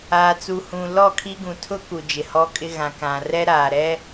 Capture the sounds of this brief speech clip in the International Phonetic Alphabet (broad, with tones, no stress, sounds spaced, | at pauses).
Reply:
aː˨ t͡s u˨ h ũ˨ l ɔ˦˨ kʰ i˦ ɡ ũ˨ tʰ ʊ˦ k u˨ d͡ʒ ɪ˨ h ɔ˦ kʼ ɪ˦ ɣ ã˨ k ã˨ r ɛ˦ ɾ aː˨ ɾ ɛ˦